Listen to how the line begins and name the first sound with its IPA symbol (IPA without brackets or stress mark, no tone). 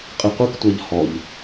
qʼ